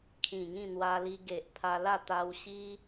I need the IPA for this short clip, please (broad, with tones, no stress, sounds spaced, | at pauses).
kʰ ĩ˨˩ ŋ ĩ˥˧ n̪ w a˧ l i˧ ɡ e˨ ʔ pʰ a˧ l a˥˧ t̪ a˧ w ɕ i˦